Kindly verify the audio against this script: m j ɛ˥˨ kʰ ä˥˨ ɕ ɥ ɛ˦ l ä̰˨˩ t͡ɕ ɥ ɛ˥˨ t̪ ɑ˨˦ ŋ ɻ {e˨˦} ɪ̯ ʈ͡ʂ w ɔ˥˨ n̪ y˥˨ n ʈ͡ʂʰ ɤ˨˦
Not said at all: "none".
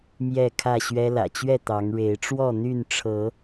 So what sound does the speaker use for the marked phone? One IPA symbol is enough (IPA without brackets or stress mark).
e˨˦